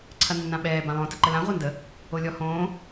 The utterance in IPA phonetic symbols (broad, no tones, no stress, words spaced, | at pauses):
ǀʰɐnːãɓɛː bãlˠõ təǃəlã ʁʷɐndə | olʲɔhõː